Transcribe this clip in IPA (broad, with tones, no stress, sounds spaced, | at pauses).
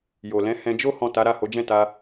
j o˨ l ɛ̃˨˦ h ɛ̃˧ d͡ʒ o˦ h ɔ̃˦˨ t a˨˦ ɾ a˦˨ h o˨˦ d͡ʒ ɛ̃˦˨ t a˧